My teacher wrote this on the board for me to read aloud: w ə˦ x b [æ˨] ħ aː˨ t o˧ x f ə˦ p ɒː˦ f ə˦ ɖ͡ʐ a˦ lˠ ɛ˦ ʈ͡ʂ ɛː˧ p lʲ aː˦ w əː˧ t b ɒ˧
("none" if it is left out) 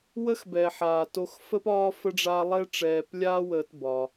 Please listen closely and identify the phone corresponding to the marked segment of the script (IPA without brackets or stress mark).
ɛ˨